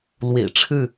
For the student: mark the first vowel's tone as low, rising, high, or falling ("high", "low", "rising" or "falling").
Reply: low